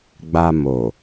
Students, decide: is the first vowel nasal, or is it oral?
oral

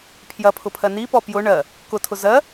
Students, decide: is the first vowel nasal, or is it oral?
oral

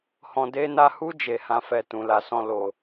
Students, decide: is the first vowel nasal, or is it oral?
nasal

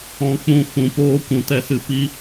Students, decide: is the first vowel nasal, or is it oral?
nasal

